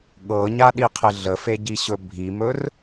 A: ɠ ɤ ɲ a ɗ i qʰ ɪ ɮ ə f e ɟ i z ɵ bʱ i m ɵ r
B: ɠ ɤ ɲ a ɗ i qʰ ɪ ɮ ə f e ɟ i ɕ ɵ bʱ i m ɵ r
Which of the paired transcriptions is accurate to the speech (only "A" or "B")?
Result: B